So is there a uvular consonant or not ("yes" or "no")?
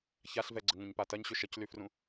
no